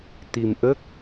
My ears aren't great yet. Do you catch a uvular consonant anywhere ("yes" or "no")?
no